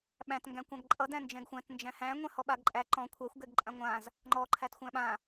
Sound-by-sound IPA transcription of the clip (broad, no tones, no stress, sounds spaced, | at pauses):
ɓ æ̃ t ŋ ɡ æ̃ kʷ ã ɡ ǃʼ ʌ d æ̃ n d͡ʒ ɛ̃ ɡ xʷ æ̃ t n d͡ʒ æ̃ h æ̃ ŋʷ ɛ̃ h ɔ ɓ a ɡ ǃʼ æ ǃ ɔ̃ kʷʰ æ xʷ ɡ ɛ ɡ ǃʼ ã ŋʷ ã z | ŋ͡ǃ ɔ ǃʰ æ t xʷ æ̃ ɓ ã